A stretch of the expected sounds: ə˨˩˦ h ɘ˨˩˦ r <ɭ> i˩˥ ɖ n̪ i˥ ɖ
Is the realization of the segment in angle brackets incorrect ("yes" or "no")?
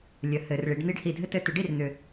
no